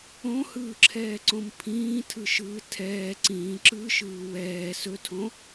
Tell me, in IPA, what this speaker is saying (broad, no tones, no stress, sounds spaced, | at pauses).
õ h ɯː ǁʰ ɛː ǀ õ m pʰ ĩː tʰ ɯ ʃ ɯː tʰ ɛː ǀ ĩː ǁ ɯː ʃ ɯː w ɛː s ɵ tʰ õ